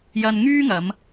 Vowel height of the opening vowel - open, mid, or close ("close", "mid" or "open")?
open